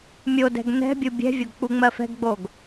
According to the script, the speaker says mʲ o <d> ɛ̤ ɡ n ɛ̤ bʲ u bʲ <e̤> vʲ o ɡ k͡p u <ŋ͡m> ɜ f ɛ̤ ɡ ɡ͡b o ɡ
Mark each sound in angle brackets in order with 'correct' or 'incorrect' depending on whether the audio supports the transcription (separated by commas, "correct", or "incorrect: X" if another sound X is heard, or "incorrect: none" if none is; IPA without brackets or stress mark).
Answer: correct, incorrect: ɛ̤, correct